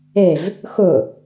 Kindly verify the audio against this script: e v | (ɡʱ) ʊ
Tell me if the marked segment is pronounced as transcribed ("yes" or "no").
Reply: no